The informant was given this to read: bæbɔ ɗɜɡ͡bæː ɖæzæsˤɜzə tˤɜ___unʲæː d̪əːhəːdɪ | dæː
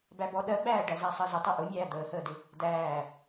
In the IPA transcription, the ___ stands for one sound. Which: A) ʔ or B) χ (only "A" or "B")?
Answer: A